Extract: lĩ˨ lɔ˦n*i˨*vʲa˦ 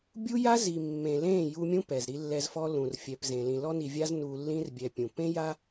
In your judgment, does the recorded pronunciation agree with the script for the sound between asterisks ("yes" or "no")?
yes